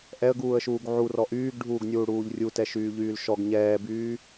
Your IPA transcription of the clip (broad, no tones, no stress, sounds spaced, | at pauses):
ʔ ɛ ə̯ ɡ uː ə̯ ʃ uː ɡ ʕ u r ɔ ʔ yː ɡ ɖʱ uː ɡ nʲ uː ɽ uː ʎ rʲ u t ɛ ʃ yː ʎ yː l ʃ ɔ ɡ ɲ ɛː b yː